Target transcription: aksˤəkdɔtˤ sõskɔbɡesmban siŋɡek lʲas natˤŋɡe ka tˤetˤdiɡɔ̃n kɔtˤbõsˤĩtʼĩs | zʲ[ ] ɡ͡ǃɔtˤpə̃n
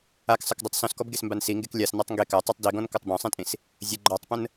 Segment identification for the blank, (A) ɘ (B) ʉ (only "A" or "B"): A